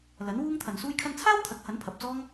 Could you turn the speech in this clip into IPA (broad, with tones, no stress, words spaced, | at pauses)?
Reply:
lɐ˨˥nwuː˥ŋt̪ʰɐ˨n suː˧jkʰɐ˧nt͡sʰaː˥wt̪ʰɐ˨˥k̚ hɐ˨˥npʰɐ˨p̚t͡sɔː˥ŋ